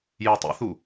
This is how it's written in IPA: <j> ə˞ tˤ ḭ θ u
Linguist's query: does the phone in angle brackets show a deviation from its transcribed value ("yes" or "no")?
no